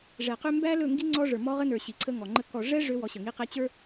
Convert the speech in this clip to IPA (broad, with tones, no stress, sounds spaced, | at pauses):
ʐ ɛ˨ q ø˦ m b æ˦ l ɵ˦˨ ŋ ɡ i˦ ŋ͡ǀ ɔ˦ ʐ ə˞˨ m ɔ˦ ʁ ə˦ n ə˞˨ ɕ i˨ ǀʰ ə˦ ŋ ɔ˨ ŋ͡ǃ ə˦ k ɔ˨ ʐ ɛ˦ ʐ ø˦ w ɔ˨˦ ɕ ə˨ ŋ i˦ q ɛ˦ t͡ɕ ə˞˦